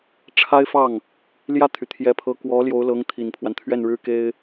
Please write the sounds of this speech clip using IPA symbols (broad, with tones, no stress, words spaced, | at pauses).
ʈ͡ʂʰa˥ɪ̯fɑ˥˩ŋ | ljä˥˩t̪ʰy˩ t̪ʰjɛ˧˥pʰɤ˧˥ kwɔ˧˥ ljo˧˥ʊ̯lɤ˧˥ŋ t̪ʰi˨˩npʰwa˦n t̪ʰɥɛ˥˩nɻɻ̩˥ke˥ɪ̯